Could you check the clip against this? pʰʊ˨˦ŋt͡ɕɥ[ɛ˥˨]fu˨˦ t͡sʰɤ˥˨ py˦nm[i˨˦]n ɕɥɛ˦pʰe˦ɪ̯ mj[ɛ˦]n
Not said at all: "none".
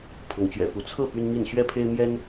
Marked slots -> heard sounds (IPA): ɛ̰˨˩, i˥˨, ɛ˦

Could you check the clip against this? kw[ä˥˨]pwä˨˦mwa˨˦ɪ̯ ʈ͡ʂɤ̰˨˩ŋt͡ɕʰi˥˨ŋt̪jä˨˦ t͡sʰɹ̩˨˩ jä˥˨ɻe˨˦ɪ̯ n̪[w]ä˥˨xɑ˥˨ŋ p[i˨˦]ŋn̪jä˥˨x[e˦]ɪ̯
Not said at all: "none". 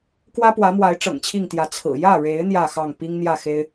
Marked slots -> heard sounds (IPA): ä˦, j, i˦, e˦

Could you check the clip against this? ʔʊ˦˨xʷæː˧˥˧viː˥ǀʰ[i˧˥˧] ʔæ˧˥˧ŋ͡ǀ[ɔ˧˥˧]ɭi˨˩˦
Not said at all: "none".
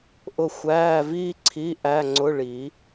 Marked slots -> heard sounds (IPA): i˧˥˧, ʊ˧˥˧

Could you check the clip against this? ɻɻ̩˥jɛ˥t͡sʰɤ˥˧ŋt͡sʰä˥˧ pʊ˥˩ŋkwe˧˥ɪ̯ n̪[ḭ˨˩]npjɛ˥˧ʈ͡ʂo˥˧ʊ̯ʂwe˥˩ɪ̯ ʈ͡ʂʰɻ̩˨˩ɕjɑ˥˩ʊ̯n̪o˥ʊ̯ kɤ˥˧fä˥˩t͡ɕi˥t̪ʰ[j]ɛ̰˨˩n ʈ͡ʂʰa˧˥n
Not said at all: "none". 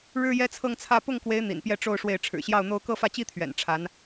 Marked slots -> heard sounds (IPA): ḭ˨˩, ɥ

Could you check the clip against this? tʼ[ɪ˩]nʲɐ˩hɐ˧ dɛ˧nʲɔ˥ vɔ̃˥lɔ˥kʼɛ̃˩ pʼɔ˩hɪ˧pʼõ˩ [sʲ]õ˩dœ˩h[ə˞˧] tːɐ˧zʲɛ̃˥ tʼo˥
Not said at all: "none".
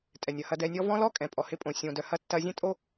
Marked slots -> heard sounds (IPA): ɛ˩, sʲ, ɐ˧

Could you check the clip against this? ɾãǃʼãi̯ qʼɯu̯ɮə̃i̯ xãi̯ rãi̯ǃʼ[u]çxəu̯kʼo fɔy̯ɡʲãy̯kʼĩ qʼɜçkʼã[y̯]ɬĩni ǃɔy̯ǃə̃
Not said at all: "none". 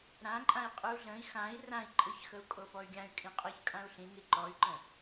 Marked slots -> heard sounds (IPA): ɯ, u̯

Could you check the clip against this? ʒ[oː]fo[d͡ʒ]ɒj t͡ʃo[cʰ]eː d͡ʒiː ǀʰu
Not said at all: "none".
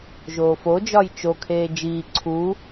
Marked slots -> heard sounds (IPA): oː, d͡ʒ, kʰ

